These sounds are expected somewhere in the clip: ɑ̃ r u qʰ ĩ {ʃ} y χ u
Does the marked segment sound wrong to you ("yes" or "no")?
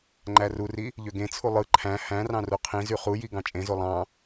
yes